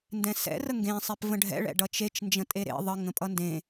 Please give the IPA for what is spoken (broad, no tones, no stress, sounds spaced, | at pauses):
n d ɛ̃ s ɛ̰ r ə ŋ ɡ ẽ sˤ e p v ə̃ ɖʱ ɛ̰ ɭ ɛ̰ ɖ ʌ t͡ʃ e t͡ʃ n d͡ʒ ə̃ tʼ e ɾ ḛ ðˤ ə ŋ ə̃ pʼ ʌ n d ẽ